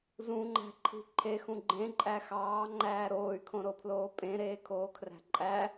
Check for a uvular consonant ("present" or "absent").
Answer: absent